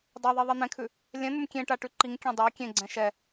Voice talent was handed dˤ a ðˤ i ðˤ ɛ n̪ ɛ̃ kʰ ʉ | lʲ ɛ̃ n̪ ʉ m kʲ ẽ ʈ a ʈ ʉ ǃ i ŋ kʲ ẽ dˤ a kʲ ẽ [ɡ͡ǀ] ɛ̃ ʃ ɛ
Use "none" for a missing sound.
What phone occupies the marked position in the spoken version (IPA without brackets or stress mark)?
ɡ͡ǀ